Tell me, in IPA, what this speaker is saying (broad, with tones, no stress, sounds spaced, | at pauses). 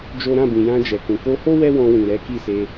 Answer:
d͡ʒ o˦ ɾ ã˦˨ b ĩ˨ j ã˧ d͡ʒ ɛ˨ k ũ˨ k o˧ h o˦ w ɛ˦ w ɔ̃˧ w ĩ˨ ɾ ɛ˨˦ k i˦˨ s e˧